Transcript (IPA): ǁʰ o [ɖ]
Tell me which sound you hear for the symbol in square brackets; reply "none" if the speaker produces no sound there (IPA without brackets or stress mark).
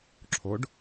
ɖ